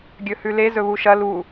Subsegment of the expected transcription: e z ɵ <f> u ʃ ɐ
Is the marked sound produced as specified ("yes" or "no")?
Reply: no